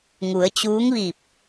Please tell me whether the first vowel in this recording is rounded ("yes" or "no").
yes